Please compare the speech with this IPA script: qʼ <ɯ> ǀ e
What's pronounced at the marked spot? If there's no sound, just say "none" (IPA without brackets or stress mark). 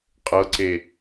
ɤ